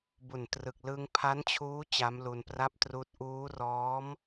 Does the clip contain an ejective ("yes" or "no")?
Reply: no